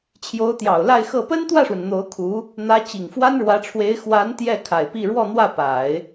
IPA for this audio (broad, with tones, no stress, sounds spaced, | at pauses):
t͡ɕʰ j o˧˥ ʊ̯ t̪ j ɑ˨˩ ʊ̯ l a˥˧ ɪ̯ x ɤ˥˩ p ə˥ n t̪ w ä˥˩ ʂ w ə˩ n n̪ o˧˥ ʊ̯ kʰ u˧˥ | n̪ ä˧˥ t͡ɕ i˨˩ ŋ f w a˥ n ɻ w ä˧˥ ʈ͡ʂʰ w e˧˥ ɪ̯ x w a˧˥ n t̪ j ɛ˥˩ kʰ a˨˩ ɪ̯ p i˥˧ ɻ w ɔ˥˧ n̪ w ä˥˩ p a˨˩˦ ɪ̯